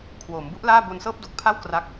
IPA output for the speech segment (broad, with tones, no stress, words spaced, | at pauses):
kʰwoː˩˦mbu˦˥ʔlaː˥˩ bo˧nsɤː˥˩p̚do˨˩k̚pʰa˥˩w kra˦˥k̚